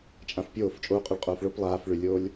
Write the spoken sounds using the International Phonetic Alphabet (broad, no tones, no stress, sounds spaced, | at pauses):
t͡ʃʼ ã f pʲ oː f t͡ʃʼ oː qʼ ø ɭ qʼ oː f ɭ o p lˠ aː f ɭ y lʲ oː lʲ